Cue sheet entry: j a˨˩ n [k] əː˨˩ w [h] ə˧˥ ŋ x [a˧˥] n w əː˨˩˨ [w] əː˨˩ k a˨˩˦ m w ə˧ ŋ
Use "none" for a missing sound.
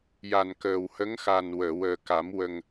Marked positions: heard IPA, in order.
k, h, a˨˩, w

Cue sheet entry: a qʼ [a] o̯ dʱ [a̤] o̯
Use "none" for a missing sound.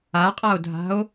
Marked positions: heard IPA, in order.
a, a̤

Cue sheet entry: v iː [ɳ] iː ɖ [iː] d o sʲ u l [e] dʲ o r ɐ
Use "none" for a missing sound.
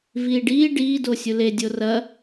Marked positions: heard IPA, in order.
ɖ, iː, e

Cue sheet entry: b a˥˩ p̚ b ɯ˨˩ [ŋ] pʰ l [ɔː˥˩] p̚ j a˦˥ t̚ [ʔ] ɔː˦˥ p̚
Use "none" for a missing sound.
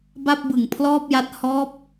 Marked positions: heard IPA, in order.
ŋ, ɔː˥˩, h

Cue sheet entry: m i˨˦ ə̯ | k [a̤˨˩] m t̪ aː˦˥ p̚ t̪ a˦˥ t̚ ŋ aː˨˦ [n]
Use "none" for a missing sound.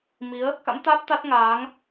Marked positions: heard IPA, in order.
a̰˧˥, ŋ

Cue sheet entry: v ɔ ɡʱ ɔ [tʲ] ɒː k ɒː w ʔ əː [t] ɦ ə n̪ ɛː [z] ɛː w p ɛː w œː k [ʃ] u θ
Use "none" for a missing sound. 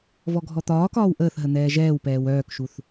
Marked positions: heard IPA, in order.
t̪, θ, ʒ, ʃ

